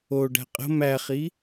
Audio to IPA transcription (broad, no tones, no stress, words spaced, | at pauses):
o ɖæ̤qʼə̤ mæχi